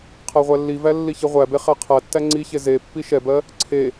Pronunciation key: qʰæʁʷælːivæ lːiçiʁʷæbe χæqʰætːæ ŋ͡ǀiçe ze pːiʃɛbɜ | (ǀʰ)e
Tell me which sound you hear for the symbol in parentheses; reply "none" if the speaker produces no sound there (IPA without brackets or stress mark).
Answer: ǀʰ